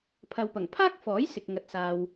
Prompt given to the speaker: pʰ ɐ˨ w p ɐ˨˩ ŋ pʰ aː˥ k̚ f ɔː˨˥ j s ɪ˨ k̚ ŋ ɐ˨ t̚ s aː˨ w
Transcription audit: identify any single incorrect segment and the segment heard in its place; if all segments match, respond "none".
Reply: none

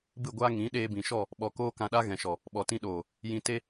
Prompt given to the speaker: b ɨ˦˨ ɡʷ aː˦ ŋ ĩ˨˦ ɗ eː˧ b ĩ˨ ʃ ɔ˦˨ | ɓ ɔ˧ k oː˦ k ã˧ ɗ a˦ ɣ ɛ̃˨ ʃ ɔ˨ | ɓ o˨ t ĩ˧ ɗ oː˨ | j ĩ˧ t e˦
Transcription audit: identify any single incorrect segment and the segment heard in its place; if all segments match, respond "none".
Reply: o˨ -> ɔ˨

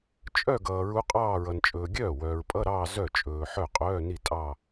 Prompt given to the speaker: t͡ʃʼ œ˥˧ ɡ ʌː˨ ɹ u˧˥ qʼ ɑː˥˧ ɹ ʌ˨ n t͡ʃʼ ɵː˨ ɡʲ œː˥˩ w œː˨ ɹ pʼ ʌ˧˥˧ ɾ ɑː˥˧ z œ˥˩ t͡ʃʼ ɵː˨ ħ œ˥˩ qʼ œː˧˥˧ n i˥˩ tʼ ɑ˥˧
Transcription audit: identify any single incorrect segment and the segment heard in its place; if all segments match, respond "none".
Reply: none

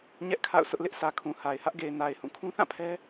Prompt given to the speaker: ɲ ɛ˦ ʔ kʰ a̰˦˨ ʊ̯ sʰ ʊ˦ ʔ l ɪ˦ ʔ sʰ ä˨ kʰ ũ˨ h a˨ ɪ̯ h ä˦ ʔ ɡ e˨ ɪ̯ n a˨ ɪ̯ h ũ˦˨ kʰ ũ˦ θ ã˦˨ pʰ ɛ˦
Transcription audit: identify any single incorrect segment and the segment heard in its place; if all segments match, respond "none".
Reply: none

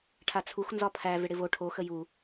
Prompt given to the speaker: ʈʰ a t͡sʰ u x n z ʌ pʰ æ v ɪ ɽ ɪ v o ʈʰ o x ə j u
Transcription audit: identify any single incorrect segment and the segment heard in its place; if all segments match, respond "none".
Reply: ʌ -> ɒ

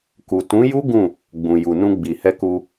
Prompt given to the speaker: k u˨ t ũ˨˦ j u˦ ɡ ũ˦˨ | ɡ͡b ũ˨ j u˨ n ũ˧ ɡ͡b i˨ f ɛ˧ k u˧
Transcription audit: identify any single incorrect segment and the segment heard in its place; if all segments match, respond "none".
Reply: f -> h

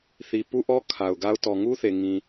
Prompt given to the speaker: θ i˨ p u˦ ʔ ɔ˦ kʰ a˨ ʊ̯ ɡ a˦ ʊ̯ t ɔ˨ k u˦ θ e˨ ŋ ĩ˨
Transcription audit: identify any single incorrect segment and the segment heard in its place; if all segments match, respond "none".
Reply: k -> ŋ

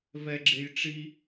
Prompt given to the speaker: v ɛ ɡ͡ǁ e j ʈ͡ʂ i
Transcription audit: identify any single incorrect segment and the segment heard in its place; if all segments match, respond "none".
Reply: none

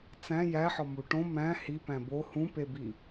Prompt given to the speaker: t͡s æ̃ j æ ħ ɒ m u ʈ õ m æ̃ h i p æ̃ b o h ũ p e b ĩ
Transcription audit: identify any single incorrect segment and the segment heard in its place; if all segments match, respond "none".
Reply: ĩ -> i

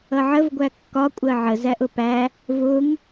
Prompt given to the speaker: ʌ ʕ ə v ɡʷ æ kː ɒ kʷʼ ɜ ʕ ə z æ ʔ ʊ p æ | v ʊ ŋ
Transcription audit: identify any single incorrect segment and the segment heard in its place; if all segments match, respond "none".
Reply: none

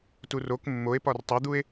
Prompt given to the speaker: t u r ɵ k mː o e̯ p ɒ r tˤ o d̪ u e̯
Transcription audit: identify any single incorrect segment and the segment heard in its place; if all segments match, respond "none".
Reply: ɵ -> o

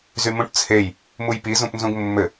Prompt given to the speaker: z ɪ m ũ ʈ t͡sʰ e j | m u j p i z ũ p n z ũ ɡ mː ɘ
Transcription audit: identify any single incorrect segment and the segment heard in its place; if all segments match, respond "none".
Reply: ɪ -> y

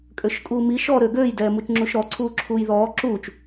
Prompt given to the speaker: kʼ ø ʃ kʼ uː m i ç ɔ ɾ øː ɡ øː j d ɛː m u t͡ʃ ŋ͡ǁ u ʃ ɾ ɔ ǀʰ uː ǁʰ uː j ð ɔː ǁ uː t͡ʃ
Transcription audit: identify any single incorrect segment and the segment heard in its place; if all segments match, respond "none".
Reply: ç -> ʃ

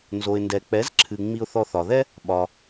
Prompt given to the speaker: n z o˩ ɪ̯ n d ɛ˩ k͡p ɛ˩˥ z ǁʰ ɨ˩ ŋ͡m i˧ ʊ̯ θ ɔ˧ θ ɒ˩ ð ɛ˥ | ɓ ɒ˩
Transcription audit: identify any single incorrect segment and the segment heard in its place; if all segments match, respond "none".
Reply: none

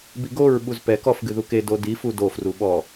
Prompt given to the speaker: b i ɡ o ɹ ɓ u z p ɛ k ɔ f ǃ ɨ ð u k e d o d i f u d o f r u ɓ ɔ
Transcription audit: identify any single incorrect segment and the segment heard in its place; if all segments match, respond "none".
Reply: ǃ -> ɡ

